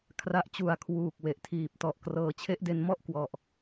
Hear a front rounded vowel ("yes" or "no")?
no